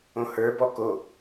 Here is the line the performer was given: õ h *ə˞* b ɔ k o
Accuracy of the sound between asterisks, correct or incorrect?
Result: correct